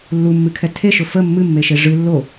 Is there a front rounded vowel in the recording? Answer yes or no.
no